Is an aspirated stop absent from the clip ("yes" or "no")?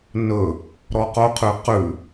no